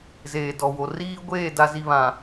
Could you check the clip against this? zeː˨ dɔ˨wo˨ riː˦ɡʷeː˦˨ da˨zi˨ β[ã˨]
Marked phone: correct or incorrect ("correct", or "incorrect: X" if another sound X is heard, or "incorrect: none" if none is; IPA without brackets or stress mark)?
correct